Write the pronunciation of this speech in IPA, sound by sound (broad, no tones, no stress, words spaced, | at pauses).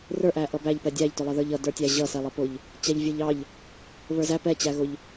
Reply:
rə˞ʔæ ʔʌbæʎpɛ dʲæʎtʊlˠʌðə˞ʎ ʌdə˞tʲæ ʑʌsɛlˠʌpʊʎ | t͡ɕæʎvʲə˞ʎɑʎ | βə˞zæ pɛt͡ɕæɣʊʎ